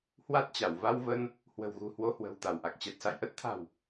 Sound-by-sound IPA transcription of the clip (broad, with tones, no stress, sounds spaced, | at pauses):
h w a˦˥ t̚ t͡ɕ a˧˩ w v a˧ w v ə˧ n | h w ə̤˨˩ w ɣ ṳ˨˩ h w o˧ h w ə̤˨˩ w t̪ a˧˩ w ʔ a˨˩ k̚ t͡ɕ ɛ˨˩ t̚ s a̰˧˨ j ʔ ə˦˥ t̚ t̪ʰ a̤˨˩ w